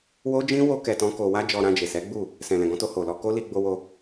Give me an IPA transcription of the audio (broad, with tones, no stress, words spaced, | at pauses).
wo˦d͡ʒĩ˦ wo˦ kɛ˧tɔ̃˦ko˧ wa˦d͡ʒɔ˧ɾã˧d͡ʒe˨ sɛ˨˦ɡ͡bu˦˨ | sɛ̃˨lɛ̃˨ɡɔ̃˧to˧ ho˨lɔ˧ ko˦li˧ ɡ͡bo˧wo˧